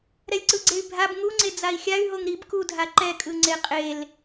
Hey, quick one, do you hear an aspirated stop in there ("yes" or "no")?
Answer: no